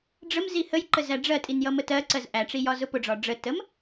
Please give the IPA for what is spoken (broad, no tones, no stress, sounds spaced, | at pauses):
ɖ͡ʐ ə m z i h ə j ǃ ə z æ ɖ͡ʐ ɜ tʼ i n j ʌ m ə t ɜ ǀ ɜ z ʔ æ ʈ͡ʂ i j ɒ z ʊ p ʊ ɖ͡ʐ ɒ ɖ͡ʐ ə t ə m